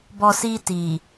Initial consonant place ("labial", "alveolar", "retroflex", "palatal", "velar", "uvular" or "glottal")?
labial